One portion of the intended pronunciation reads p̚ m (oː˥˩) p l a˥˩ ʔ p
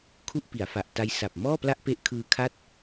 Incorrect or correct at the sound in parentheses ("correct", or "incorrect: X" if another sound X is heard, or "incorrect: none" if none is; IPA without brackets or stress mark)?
incorrect: ɔː˥˩